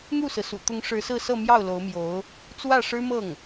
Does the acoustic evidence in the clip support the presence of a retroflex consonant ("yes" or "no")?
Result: yes